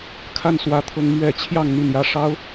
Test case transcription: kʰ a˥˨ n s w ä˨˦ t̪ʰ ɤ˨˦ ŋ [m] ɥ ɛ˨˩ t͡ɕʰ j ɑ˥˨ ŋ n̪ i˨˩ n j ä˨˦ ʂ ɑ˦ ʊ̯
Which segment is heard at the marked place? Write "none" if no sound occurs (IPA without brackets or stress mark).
m